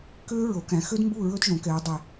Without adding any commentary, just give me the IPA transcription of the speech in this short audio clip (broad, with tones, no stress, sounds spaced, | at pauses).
k ø˦˥ ɹ o˩˧ k æ̃˩˧ x ø˦˥ d m b u˥˩ ɹ ɵ˦˥ d ʒ õ˩˧ k ɛ˩˧ ɹ dˤ ɛ˨˩